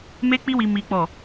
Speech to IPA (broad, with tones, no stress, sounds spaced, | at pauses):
m e˦ k͡p i˦ w i˧ m i˦ k͡p ɔ˦˨